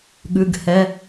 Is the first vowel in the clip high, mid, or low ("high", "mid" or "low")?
high